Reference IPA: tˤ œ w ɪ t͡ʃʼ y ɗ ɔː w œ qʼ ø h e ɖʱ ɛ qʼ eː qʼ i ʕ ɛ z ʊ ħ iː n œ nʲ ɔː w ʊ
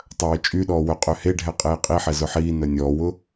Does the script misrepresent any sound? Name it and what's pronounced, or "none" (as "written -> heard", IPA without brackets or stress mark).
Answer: ʕ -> ħ